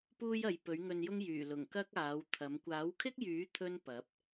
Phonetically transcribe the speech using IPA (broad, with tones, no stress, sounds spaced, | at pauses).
p uː˥ j ɐ˨ j p ɵ˨˥ ɥ ŋ ɵ˧ n j ʊ˥ ŋ j yː˨˩ l ʊ˨˩ ŋ k ɐ˥ k̚ aː˨˥ w t̪ʰ ɐ˨˥ m kʷ aː˨˥ w kʰ ɪ˥ k̚ j yː˨˥ t̪ʰ ɵ˥ n p ɐ˨˥ p̚